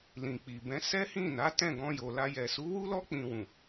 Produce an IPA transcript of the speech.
l ĩ˨ k͡p i˨ b ɛ̃˨˦ s ɛ˦ h ĩ˦˨ n a˨˦ t ɛ̃˦˨ ɡ ɔ̃˧ j o˨ l a˧ j ɛ˨ s u˨˦ w u˦ l ɔ˦ k͡p ĩ˧ w ũ˨

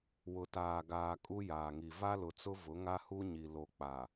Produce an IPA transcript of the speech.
w ʊ˨ t aː˨ ɡ aː˨ kʼ u˦ j aː˨ ŋ i˨ v a˦ l ʊ˨ t͡s ʊ˦ v ʊ˨˦ ŋ a˦ h u˦ ɲ i˨ l o˨ k͡p a˨

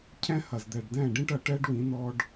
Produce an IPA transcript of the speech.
cʰ ɛ̃˦ h ɐ˨ z d̪ ɛ˨ ɖ d ɛ̃˦˨ ɖ ĩ˦ ʈ ɐ˨ ʈ ɛ˦ ɖ w ĩ˨˦ n ɔ˦ ɖ

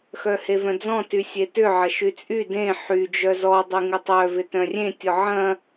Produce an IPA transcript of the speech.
x œ h e v œ̃ d͡z ɔ̃ t y sʲ e t ʏ ʕ ɐ ʃ y t͡sʼ y d ẽ ħ y d͡ʒ œ z ɔ dˤ y ŋ ɪ tˤ œ v ɪ t œ̃ rʲ ẽ tʲ ɔ ʕ ɐ̃

